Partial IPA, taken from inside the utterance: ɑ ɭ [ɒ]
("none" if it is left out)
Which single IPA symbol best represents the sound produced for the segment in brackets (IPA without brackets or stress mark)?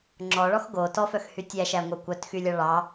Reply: ɑ